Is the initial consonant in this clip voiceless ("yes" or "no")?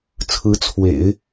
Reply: yes